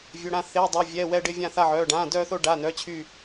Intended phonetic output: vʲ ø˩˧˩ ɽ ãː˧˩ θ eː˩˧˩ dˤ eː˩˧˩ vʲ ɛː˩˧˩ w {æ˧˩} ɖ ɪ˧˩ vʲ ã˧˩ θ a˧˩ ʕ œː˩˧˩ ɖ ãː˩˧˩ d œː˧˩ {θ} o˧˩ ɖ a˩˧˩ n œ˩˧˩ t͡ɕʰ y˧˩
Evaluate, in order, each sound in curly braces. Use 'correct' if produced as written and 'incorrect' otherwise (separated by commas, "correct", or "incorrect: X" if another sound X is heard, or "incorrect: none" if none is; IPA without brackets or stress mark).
incorrect: ɛ˧˩, correct